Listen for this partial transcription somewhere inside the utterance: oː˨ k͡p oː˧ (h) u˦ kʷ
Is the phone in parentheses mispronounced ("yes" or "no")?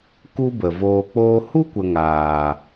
no